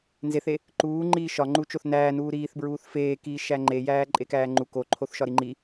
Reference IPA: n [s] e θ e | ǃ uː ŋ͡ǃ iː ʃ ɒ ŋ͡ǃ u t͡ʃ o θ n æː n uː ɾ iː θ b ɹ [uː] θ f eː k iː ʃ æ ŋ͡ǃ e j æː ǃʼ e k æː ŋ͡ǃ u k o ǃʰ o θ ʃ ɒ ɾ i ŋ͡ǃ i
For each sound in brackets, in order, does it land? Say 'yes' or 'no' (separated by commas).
no, yes